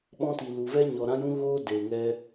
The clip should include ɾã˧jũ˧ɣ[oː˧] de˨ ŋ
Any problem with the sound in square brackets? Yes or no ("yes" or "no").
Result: no